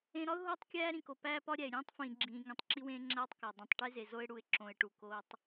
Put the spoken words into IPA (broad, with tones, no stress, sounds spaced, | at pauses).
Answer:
ẽ˨ ɾ ɒ˦ ʊ̯ ɦ oː˦ tˤ kʲ æː˦ ɾ ĩ˨ k o˨ p æː˦ p ɒ˦ ɾʲ æ˨ ɪ̯ ɾʲ ẽː˦ tˤ f ĩː˨ ɡ͡ǁ ĩː˨ ŋ ĩ˨ tˤ ǁ i˦ w ẽː˦ ŋ͡ǁ æː˦ tˤ k æ˨ dˤ ũ˨ tˤ ʈ e˦ z e˨ z o˦ ɪ̯ ɽ u˨ ɪ̯ ǁ õ˨ ɪ̯ ʈ u˨ k oː˦ tˤ